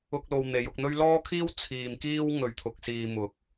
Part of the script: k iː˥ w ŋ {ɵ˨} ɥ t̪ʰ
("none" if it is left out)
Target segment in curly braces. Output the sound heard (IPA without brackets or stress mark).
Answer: ɵ˨